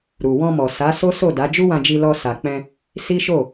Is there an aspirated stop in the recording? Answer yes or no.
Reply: no